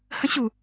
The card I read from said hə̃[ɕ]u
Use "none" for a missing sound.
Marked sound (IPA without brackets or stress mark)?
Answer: ɕ